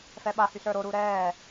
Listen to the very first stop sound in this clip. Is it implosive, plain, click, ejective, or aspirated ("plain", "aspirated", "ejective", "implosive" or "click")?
implosive